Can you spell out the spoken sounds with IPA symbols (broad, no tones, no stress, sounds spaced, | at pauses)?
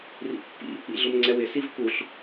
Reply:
r ḭ pː ḭ | ḭ ɮ ʊ m ŋ͡ǀ ɛ w ɪ s i v k u ɬ